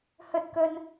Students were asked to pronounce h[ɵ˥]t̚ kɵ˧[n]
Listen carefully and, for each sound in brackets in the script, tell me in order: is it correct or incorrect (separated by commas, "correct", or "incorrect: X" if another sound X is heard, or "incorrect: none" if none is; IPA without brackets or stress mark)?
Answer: correct, correct